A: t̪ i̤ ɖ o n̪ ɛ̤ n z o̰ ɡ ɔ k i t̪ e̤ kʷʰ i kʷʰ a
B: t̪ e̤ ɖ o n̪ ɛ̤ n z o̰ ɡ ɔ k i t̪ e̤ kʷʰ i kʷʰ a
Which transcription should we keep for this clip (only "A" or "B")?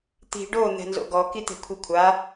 A